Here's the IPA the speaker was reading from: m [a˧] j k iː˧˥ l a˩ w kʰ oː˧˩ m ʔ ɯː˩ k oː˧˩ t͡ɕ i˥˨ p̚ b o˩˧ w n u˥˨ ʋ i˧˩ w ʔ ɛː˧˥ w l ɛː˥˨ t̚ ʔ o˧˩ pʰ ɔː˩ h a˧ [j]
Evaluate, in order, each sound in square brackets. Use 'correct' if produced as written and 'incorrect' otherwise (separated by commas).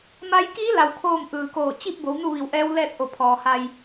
incorrect, correct